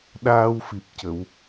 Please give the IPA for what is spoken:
ɗ aː˧ w f i˨˩ p̚ c ə˨˩˨ w

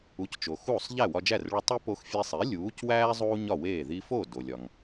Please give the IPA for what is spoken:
u˩˥ c t͡ʃ o˩ x uː˥˩ sˤ ʎ æ˥˩ w ɒ˧ d͡ʒ æ˥˩ r ɭ u˧ tˤ e˥ p o˧ x fʲ e˧ sˤ i˩˥ lʲ uː˩˥ c w æː˥ zˤ uː˥ ɲ ɒ˥˩ w eː˥˩ ð i˧ f o˥˩ d o˩ lʲ ɒ˩ ŋ

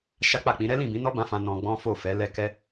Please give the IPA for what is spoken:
ʃ a˦ k͡p a˦˨ k͡p ĩ˨˦ ɾ ɛ˦ l ĩ˦˨ b ĩ˨˦ n ɔ˦ b ã˧ f ã˧ n ɔ̃˧ ɡ͡b ɔ̃˦ f o˦˨ f ɛ˨˦ l ɛ˦ k ɛ˦

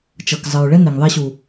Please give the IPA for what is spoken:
t͡ʃ ɤ˨ k zˤ ə˨ ɹ ɭ ɛ˦ n e˨ ŋ ðˤ ɛ˦ ɕ u˨

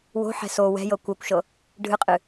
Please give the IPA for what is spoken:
w o̤ ħ ɛ̤ s o w ɛ̤ j ɤ kʷ œ kʷ ʃ ɤ | ɖʱ ɨ qʼ ɨ

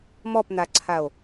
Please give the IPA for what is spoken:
m ɔ p n̪ a ǀʰ a o̯

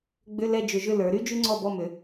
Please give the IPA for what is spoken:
ɡ͡b ʏ˧˥˧ l ɛ˥˨ d͡ʒ ʏ˧˩˧ ʒ ʏ˥˨ l ə˞˩˧ ɾ y˥ d͡ʒ y˥ ŋ͡ǀ ɔ˥˨ b ɔ˥˨ m ʏ˩˧

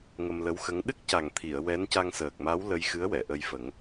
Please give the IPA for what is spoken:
ŋ ə˧ m l ə˧˥ w x ə˧˥ ŋ ɗ ɨ˦˥ k̚ c a˨˩ ŋ t̪ʰ i˨˩˨ ə̯ w ɛ˧˥ n c a˧ ŋ s əː˨˩ k̚ m a˧˥ w l ə˧ j x ɨ˧˥ ə̯ w ɛ˨˩˨ ʔ ə˧ j f ə˨˩˦ ŋ

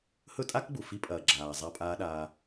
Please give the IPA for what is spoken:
h ɵ˦ tʼ a˦ k ɡ͡b u˨ f i˦ pʼ ɐː˨ ɡ͡ǁ aː˨ zˤ a˦ pʼ aː˦ ɗ aː˦

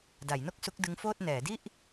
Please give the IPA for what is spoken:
d a˩˦ j n o˥˩ k̚ s u˦˥ k̚ d ɯ˦˥ ŋ f oː˥˩ t̚ n ɛː˩˦ d i˥˩ ʔ

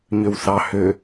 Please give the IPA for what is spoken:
ɲ ø w θ ɑ h ø

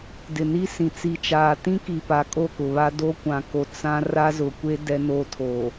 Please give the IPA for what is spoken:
d ɪ˨ n i˦ s ĩ˨ t͡s i˨ t͡ʃ aː˨ t ĩ˦ k i˨ p a˨˦ kʼ o˦˨ k ʊ˨ β a˦ d o˦ kʷ ã˨ k o˨ t͡s ã˦ r a˦ z ʊ˨ kʷ e˦ d ɛ˦ n o˦ tʰ o˨

